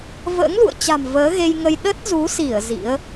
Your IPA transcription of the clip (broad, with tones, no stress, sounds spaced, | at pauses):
v ə̰ː˧˥ ŋ l ṵ˧˨ ə̯ t͡ɕ a̤˨˩ m v əː˨˦ ɣ e˧ j ŋ ə˧ j ɗ ə˦˥ t̚ z u˨˦ s i˧˩ ə̯ z ḭ˧˥ ə̯